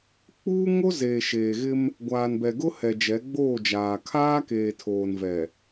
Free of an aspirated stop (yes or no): no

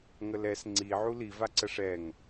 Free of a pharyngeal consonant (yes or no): no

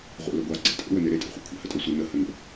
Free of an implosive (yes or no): yes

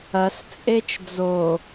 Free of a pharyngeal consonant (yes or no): yes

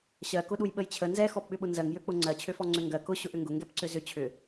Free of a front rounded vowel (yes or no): no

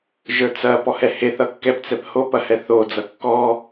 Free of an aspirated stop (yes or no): yes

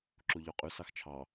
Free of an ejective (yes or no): no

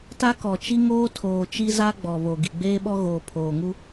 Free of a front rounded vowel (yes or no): yes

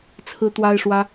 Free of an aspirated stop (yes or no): no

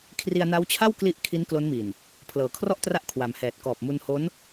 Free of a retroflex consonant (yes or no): yes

